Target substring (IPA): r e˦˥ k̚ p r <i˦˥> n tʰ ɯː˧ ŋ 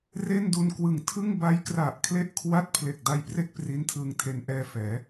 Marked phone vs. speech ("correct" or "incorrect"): correct